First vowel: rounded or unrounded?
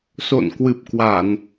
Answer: rounded